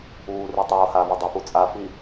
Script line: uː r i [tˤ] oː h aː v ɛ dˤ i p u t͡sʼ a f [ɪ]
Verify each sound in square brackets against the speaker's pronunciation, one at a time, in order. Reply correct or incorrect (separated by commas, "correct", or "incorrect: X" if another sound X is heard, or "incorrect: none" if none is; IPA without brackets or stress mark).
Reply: correct, incorrect: i